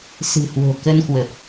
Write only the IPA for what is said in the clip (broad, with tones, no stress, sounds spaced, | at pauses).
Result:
s ɨ̤˨˩ h w o̤˨˩ k ə˧ n k w ə˨˩ p̚